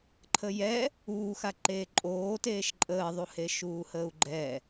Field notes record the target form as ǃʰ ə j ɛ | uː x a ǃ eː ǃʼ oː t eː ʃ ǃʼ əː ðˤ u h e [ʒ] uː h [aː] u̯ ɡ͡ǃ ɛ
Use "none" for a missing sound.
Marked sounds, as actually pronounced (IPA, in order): ʃ, əː

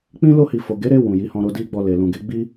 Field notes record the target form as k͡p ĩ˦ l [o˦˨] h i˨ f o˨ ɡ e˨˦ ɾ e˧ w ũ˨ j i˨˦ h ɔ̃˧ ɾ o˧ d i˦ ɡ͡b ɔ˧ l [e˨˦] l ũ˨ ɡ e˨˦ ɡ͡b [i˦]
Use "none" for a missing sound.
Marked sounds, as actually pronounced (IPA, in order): o˧, e˨, i˦

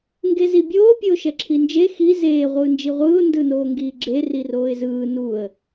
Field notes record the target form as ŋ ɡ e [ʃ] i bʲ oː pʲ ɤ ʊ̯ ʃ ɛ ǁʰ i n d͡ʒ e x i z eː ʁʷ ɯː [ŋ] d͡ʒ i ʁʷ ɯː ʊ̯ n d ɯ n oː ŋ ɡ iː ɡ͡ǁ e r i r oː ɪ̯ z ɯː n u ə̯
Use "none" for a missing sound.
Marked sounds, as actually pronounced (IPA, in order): z, n

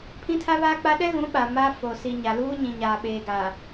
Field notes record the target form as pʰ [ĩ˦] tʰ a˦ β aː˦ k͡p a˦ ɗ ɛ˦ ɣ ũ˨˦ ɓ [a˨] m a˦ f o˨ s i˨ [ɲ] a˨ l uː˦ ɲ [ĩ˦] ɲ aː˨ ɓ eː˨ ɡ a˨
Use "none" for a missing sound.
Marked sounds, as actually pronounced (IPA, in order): ĩ˦, a˨, ɲ, ĩ˨

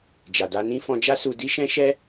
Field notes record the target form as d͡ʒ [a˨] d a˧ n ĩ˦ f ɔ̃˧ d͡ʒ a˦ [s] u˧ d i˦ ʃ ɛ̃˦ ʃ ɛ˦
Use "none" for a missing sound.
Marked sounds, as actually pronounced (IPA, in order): a˨, s

